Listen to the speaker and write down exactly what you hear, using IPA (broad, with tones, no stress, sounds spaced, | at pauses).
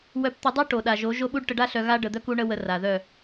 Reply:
w œ˧ p t̪ ə˧ dˤ u˦ ʈ o˨ ɗ a˨ ʒ o˨˦ ʒ o˦ ɓ u˦ ɖ ʈ ə˧ ɖ a˦ ɬ œ˧ ɣ a˦ ɖ ə˨ d̪ œ˧ k u˧ ɳ ə˧ w ə˧ r a˨ ð œ˦˨